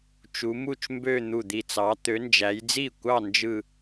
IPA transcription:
t͡ʃ u˨˦ m u˥˩ t͡ʃ m b ø˥˧ n̪ u˧˩ d̪ i˧˩ t͡s ɑ˨˦ t̪ ø˨˦ n d͡ʒ æ˨˦ j d͡z i˥˩ kʷ ɑ˥˧ n d͡ʒ ɯ˥˧

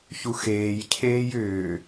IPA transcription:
ç u x eː j cʰ eː j ʏː

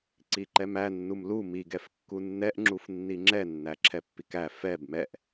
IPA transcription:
ǀ i ǃ ɛ m æ nː u m l u m i ɡ ɛ f kː u nː ɛ ʔ ŋ͡ǁ u f nː i ŋ͡ǁ ɛ nː æ ǁʰ ɛ pː i k æ f ɛ b m ɛ ʔ

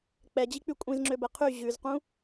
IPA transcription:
k͡p ɛ d͡ʑ i k͡p y kʷʼ ĩ z ŋ͡ǁ ø b ɛ qʰ y ʑ ʉ z q ũ

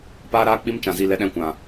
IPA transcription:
p aː˦ ɾ aː˦ k͡p i˦ m t͡ʃ ã˨ z i˦˨ l ɛ˧ ɗ ɛ̃˧ kʷ ã˨

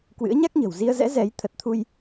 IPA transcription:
k w ɨ̰˧˥ ə̯ ɲ a˦˥ k̚ ɲ ə̤˨˩ w z i˧ ə̯ z ɛ̰˧˥ z ɛ˨˦ j t̪ʰ ə˨˩ t̚ t̪ʰ u˧ j

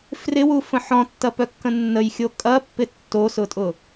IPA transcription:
f r ɪ w u f ə̃ ħ ɔ̃ tː ɐ p œ kː ə̃ nː ə j xʲ o kʼ ɐ pː ɪ tː o s ʊ tʼ ʊ

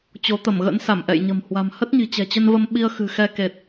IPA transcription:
t͡ɕ o˨˦ t̪ ə˧˩ m ɣ ə̰˧˥ n s a˧˩ m ʔ ɛ̰˧˨ j ɲ ə̤˨˩ m h w a̤˨˩ m h ə˦˥ t̚ ɲ i̤˨˩ t͡ɕ ɛ̤˨˩ t͡ɕ ə˧ n v ə˧ m ɓ i˧ ə̯ x ɨ̤˨˩ x ɛ˧ k e˨˩ t̚

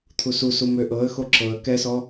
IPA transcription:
t̪ʰ u s u s u m ø ʔ ɤ ə̯ x o ǁ ɤ ə̯ k ɛ s ɔ

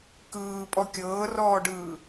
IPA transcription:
k ɯː pʼ ɔ kʲ ɤː r ɔː ɖ ɯː

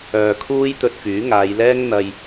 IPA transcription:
œː˨ kʰ uː˥ j t̪ ɵ˧ t̚ f yː˨˥ ŋ aː˨˧ j l ɛː˥ ŋ n̪ ɐ˧ j

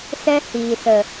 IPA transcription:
s ɛ˦ h iː˨ s ə˨

